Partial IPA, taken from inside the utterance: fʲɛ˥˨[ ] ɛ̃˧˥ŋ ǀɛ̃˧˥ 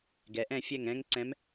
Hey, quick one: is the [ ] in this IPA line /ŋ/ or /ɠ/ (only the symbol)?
ŋ